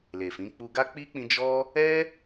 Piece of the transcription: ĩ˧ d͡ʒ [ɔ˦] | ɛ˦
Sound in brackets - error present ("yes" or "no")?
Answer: no